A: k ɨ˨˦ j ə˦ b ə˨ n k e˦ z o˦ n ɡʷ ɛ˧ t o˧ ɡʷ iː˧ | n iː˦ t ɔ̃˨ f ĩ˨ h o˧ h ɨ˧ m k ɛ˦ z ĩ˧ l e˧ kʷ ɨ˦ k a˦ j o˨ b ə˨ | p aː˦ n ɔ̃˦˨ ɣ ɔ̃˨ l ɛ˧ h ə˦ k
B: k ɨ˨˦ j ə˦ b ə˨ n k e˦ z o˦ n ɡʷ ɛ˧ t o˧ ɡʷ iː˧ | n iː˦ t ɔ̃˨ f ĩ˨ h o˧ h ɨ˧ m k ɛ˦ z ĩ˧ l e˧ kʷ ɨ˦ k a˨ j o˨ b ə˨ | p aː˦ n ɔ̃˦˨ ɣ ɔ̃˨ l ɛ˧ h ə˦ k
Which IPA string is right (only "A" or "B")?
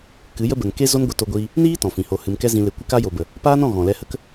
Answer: A